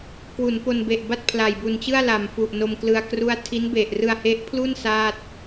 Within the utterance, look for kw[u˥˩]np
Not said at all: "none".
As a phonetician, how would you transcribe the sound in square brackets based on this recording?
u˩˦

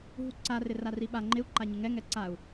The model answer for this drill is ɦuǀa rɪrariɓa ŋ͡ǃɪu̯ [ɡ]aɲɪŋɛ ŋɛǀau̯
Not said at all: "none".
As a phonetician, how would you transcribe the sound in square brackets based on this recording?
ǃ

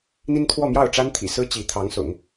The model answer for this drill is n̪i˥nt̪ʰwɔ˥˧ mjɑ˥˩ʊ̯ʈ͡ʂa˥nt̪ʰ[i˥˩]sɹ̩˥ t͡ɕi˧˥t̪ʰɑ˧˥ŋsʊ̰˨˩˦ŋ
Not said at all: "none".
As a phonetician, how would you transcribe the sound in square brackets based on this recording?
ḭ˨˩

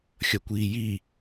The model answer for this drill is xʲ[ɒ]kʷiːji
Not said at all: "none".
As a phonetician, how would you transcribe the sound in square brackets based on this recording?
ʌ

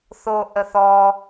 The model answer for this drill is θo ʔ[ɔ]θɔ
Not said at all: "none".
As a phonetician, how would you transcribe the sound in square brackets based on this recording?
ə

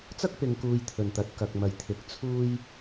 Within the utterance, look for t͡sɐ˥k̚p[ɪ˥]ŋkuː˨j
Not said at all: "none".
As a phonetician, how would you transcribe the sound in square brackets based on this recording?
ɪ˨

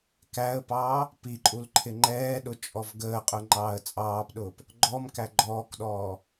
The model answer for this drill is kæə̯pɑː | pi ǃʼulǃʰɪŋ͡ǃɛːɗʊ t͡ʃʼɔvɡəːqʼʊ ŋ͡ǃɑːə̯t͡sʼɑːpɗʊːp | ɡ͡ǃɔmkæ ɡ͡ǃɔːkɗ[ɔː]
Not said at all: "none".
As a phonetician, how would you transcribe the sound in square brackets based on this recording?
ɔː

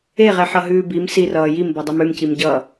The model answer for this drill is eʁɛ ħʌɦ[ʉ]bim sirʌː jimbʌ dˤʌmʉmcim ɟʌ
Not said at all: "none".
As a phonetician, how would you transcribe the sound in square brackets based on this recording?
ʉː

